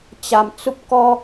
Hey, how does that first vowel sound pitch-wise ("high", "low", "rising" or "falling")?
low